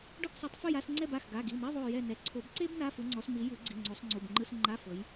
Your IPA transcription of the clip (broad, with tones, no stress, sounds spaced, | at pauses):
ɖ ɔ˦˨ k sˤ u˨˩˦ tˤ f ɯ˦˨ j a˧˥˧ s ŋ͡ǀ ɛ˦˨ b a˩˧˩ x ɡ a˩˧˩ ɡ i˩˧˩ m e˧˥˧ ðˤ o˦˨ j ɛ˦˨ n ɛ˨˦ ǀʰ o˨˩˦ b ǀ e˥ b n a˧˥˧ f ɯ˨˦ ŋ͡ǀ ɔ˨˦ s m i˨˦ j ɯ˨˩˦ ɡ͡ǀ i˩˧˩ ŋ͡ǀ o˨˦ sˤ ŋ͡ǀ u˩˧˩ b ŋ͡ǃ ɯ˧˥˧ s ŋ͡ǃ a˧˥˧ f ɤ˨˦ j